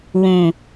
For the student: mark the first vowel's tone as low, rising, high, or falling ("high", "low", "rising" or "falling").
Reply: low